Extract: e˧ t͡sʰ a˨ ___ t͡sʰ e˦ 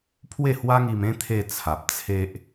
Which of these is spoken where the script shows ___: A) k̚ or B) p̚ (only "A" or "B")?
B